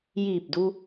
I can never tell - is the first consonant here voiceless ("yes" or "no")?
no